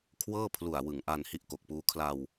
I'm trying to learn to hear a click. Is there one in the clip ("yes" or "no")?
no